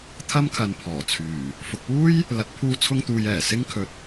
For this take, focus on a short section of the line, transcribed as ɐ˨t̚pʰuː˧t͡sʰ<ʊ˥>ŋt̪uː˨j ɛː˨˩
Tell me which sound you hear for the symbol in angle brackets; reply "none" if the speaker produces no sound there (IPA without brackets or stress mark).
ʊ˧